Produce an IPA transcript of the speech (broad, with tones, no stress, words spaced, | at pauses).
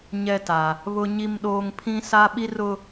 ɲɛ˦ta˨ | βʊ˦ɲi˦mɗoː˦ŋ pʰĩ˦sa˦ ɓi˦rʊ˦